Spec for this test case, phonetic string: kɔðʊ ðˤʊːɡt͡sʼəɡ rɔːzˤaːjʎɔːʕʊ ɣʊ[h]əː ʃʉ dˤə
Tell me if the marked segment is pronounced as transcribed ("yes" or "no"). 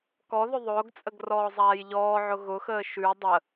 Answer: no